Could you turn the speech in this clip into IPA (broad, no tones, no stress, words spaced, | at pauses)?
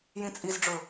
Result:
jĩt͡sʼizɖ͡ʐɵ